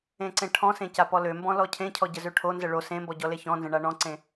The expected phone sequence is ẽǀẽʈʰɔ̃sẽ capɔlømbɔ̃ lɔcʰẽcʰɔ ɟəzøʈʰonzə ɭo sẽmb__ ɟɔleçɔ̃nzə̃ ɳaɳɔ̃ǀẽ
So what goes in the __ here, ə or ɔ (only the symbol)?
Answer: ɔ